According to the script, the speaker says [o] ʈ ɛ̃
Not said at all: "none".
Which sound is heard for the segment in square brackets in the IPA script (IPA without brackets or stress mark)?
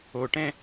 o